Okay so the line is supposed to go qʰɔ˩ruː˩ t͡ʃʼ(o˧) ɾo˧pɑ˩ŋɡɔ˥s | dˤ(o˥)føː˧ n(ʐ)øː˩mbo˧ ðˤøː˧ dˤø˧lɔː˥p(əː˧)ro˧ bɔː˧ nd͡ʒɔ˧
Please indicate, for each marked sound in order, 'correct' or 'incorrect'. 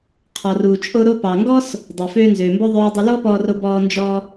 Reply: correct, incorrect: o˩, incorrect: z, incorrect: ɔː˧

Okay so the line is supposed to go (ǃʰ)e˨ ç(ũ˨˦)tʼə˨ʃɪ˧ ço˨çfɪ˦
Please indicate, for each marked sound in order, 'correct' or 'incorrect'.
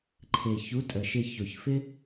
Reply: correct, incorrect: u˨˦

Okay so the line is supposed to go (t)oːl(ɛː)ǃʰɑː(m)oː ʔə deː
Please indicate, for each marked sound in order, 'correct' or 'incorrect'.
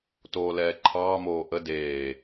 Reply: correct, correct, correct

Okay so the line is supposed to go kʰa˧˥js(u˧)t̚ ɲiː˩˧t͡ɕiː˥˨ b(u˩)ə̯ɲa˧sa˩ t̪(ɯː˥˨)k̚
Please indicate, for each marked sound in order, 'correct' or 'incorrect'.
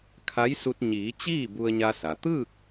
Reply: correct, incorrect: u˧, correct

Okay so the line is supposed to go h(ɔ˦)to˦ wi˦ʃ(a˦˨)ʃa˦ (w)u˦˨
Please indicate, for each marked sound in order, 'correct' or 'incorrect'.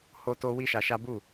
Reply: incorrect: o˦, incorrect: a˧, incorrect: b

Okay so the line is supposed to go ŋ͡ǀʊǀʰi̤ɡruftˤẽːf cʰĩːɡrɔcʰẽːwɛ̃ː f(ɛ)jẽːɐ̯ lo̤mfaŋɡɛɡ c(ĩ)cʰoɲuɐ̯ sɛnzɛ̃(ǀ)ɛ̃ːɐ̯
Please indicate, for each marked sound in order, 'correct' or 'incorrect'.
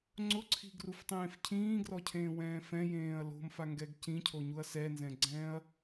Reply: incorrect: ɛ̃, correct, incorrect: ɡ͡ǀ

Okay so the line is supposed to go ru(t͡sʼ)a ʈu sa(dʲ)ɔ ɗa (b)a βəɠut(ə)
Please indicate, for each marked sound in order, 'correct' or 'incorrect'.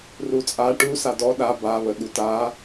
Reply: correct, incorrect: d, correct, incorrect: a

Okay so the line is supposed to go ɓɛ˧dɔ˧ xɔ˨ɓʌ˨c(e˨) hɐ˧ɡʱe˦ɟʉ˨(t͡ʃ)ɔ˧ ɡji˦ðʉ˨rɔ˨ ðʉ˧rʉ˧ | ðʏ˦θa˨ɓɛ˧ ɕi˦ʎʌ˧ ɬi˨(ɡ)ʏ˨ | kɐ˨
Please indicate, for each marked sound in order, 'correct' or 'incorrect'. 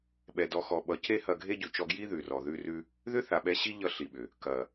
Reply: incorrect: e˦, correct, incorrect: ɓ

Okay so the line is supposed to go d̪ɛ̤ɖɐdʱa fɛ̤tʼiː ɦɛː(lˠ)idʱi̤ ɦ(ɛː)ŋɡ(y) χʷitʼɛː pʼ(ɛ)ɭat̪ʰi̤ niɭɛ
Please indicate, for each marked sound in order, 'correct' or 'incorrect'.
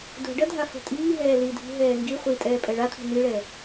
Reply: incorrect: l, correct, incorrect: i, correct

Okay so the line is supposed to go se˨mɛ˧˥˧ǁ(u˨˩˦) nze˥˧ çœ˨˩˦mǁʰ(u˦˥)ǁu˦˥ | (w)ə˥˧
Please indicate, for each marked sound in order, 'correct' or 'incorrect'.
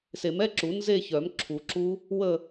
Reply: correct, incorrect: u˨˩˦, correct

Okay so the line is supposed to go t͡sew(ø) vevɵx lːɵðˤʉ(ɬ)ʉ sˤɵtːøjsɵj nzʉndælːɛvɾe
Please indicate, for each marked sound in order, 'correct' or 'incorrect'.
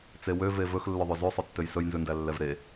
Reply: correct, incorrect: z

